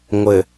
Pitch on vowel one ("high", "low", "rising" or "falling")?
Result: low